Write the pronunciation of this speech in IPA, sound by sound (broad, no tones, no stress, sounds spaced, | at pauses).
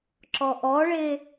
ǁ ɔ ʔ ɔ ɭ e